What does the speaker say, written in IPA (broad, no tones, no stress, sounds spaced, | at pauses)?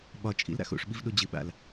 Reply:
ɓ ɒ t͡ʃʼ ḭ l ɾ a̰ x o̰ ʂ ɓ i v ɗ o d͡ʑ ɨ ɓ a̰ l